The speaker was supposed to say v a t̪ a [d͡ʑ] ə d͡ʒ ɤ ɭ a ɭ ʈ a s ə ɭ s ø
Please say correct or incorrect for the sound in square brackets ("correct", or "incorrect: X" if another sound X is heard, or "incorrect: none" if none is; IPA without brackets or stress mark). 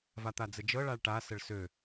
incorrect: d͡z